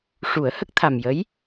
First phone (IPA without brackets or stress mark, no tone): ʂ